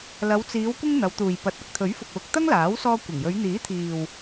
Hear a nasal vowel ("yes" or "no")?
no